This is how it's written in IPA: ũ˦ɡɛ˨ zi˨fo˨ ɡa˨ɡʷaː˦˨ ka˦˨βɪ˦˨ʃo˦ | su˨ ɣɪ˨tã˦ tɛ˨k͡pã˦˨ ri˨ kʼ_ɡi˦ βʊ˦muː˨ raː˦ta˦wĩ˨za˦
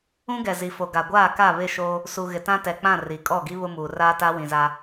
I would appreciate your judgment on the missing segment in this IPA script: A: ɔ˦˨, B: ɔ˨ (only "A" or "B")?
A